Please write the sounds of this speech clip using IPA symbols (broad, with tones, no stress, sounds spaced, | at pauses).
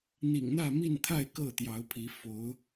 n̪ ḭ˨˩ ŋ n̪ ä˥˨ m i˥˨ n t̪ʰ a˥˨ ɪ̯ k ɤ˥˨ t̪ j ɑ˨˦ ʊ̯ pʰ i˨˦ f o˨˦ ʊ̯